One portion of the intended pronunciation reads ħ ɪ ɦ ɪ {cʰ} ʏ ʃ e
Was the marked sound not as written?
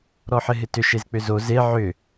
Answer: yes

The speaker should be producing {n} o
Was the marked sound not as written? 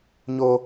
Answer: yes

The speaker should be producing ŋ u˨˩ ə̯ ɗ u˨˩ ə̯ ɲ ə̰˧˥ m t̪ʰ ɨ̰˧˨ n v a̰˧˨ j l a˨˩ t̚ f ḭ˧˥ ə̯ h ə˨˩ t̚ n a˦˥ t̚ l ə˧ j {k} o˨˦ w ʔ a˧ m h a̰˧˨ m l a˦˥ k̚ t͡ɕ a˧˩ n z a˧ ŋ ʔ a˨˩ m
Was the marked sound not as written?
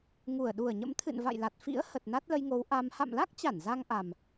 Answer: yes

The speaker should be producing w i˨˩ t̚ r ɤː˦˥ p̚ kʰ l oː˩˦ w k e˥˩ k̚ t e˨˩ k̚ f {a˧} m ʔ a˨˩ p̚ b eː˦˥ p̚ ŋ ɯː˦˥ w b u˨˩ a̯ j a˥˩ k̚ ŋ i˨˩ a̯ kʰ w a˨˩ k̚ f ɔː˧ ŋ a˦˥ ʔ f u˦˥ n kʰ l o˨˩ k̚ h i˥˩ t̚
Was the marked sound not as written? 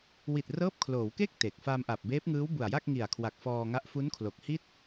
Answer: no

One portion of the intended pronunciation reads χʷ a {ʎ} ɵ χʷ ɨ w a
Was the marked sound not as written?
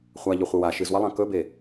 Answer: no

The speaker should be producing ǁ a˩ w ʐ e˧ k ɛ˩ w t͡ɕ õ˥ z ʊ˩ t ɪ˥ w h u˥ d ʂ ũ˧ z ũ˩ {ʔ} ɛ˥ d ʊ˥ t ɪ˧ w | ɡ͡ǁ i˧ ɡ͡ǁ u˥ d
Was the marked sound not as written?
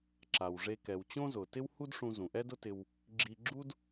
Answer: no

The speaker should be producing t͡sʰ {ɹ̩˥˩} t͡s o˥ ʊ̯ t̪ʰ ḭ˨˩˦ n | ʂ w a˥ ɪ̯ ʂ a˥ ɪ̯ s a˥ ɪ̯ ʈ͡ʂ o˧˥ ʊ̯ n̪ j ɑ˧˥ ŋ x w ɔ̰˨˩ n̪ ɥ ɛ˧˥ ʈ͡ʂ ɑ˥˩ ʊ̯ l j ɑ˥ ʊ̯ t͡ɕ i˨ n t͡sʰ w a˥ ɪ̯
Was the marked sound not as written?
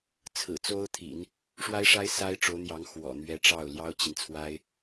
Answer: yes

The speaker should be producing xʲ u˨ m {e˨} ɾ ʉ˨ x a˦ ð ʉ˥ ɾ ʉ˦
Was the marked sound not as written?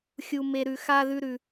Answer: no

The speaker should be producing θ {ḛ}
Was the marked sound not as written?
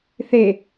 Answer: yes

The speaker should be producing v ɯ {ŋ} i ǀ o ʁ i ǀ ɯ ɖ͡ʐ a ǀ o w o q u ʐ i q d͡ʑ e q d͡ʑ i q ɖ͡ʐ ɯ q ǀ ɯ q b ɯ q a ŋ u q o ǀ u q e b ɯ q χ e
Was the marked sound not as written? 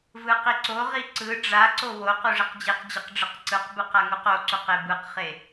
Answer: yes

